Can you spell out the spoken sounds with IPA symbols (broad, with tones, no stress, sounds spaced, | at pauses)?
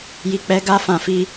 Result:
j i˨ k͡p ɛ˧ ɡ a˧ f ã˨ f i˧